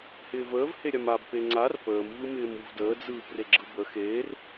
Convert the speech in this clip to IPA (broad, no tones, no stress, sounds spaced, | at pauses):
h ɪː v əː v h e ɾʲ a m a b p e ŋ͡ǀ a r p əː m v ɯ m ɪː m u v d əː d͡z ɯː p r e ɡ͡ǁ ɯ b ə x eː r